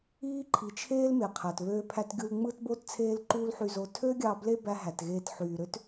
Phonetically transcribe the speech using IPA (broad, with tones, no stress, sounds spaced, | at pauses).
iː˦ ǃʰ i˨ t͡ʃʰ eː˦ l m e˨ qʰ æ˨ t β øː˧ pʰ æ˧ t ɡʲ u˧ l ŋ͡m ɯ˦ t b o˦ t t͡sʰ eː˦ l ǃ uː˦ l ħ y˧ z o˧ tʰ ø˦ ɡʲ ɑ˧ b l e˦ b æ˧ ɦ æ˨ t ɣ eː˧ t ħ yː˨ ɾ ø˦ t